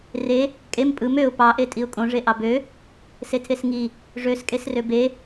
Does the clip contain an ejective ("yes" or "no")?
yes